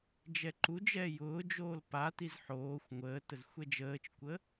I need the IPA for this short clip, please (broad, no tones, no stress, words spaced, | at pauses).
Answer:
d͡ʒɛǃud͡ʒɛː jʊːd͡ʒoːl patiz ħoːxʷ ŋʷəːtəz xʷɛd͡ʒəːt͡ʃkʷə